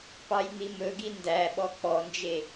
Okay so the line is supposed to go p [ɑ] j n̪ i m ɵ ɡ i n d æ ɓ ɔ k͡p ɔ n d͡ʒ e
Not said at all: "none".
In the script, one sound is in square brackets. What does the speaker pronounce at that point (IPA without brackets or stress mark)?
ɑ